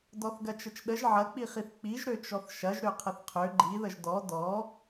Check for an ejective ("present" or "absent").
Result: absent